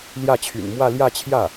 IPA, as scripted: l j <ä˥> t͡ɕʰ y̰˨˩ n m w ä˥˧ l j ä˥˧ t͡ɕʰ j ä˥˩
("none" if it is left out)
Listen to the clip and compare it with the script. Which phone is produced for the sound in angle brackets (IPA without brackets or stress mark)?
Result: ä˥˩